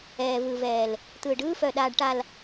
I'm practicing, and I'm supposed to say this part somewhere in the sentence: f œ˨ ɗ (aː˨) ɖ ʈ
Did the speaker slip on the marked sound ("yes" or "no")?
no